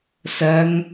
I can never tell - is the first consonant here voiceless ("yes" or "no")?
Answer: yes